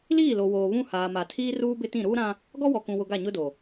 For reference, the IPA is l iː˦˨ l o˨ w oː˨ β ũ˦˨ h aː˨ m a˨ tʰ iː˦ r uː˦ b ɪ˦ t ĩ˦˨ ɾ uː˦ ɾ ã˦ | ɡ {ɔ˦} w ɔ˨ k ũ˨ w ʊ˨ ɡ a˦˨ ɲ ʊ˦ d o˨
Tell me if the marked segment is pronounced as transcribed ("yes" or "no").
yes